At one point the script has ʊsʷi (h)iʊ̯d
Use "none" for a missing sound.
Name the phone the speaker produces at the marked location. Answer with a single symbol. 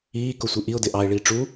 ʔ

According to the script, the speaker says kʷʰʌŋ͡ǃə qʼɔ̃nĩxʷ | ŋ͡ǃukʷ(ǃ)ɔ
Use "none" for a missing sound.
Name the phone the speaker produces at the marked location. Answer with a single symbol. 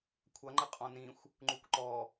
ǃ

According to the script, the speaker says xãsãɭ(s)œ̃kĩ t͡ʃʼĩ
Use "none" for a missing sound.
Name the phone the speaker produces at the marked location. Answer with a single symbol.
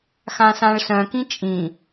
s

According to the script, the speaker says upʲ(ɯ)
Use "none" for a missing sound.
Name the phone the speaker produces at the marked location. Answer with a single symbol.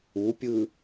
ɯ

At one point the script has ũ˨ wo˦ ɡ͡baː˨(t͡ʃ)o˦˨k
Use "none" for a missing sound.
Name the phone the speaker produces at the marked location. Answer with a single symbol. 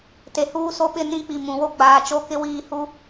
t͡ʃ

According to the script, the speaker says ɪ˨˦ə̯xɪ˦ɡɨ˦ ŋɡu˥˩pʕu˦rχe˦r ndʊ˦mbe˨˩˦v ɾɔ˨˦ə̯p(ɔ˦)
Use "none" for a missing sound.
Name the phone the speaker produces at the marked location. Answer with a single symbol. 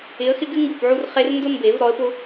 ʊ˦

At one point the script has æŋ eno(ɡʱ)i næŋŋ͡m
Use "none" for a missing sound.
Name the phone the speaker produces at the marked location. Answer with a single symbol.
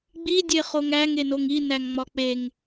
ŋ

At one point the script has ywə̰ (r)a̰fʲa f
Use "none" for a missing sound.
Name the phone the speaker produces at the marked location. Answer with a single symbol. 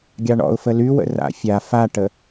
r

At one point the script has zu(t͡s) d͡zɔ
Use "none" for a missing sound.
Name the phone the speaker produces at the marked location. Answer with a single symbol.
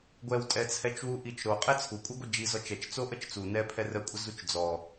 t͡ʃ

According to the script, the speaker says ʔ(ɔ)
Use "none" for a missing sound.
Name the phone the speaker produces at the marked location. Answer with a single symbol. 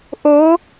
o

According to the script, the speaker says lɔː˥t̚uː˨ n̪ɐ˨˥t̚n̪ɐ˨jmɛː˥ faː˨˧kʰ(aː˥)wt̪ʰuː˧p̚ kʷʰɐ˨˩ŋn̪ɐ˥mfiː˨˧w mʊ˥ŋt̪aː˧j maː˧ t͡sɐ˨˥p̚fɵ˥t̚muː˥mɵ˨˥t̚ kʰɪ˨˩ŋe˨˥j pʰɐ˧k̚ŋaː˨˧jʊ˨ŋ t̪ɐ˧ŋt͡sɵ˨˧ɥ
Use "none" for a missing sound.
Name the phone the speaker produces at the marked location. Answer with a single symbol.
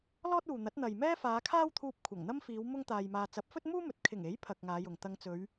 aː˥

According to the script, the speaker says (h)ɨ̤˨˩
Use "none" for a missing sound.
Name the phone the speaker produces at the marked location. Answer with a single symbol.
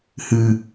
h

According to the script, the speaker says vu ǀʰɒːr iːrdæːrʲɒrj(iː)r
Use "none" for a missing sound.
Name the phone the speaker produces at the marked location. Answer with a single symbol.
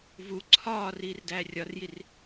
i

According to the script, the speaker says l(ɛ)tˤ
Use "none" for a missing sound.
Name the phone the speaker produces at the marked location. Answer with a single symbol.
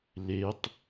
e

